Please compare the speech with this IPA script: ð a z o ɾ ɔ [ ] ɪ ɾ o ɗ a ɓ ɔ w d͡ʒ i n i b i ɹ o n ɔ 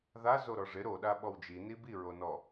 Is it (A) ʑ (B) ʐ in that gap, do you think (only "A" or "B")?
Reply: B